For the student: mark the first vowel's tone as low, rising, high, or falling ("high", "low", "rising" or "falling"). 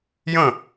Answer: falling